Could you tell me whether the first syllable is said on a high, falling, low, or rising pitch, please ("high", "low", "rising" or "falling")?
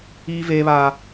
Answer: high